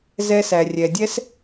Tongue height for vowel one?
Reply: mid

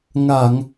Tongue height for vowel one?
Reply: low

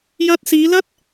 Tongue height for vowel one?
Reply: low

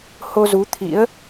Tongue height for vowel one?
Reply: mid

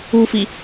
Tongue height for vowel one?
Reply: high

